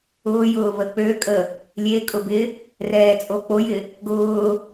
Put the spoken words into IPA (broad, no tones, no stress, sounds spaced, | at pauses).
ʊː j ʊː β ə k͡p ø kʼ ə | lʲ e kʼ ʊ b ɪ | r ɛː t͡sʼ o k͡p o j ɪ | ɡ ʊː